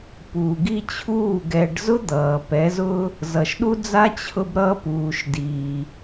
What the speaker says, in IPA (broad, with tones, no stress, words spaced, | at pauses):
puː˨ɡi˦t͡ɕʰuː˦˨ ɡɛ˨ɖzʊ˦ d̪ʌː˨ pɛ˨˦zʊ˦ | zʌ˨ʃɗu˦d͡za˦ t͡ɕʰʊ˦bɾʌ˦ puː˨ʃ diː˨